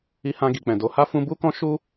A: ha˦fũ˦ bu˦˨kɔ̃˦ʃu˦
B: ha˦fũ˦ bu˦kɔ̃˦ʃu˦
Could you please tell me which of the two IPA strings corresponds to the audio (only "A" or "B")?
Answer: B